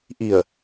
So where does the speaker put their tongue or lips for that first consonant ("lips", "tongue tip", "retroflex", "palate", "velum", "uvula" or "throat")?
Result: throat